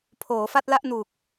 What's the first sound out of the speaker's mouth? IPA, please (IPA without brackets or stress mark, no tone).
pʰ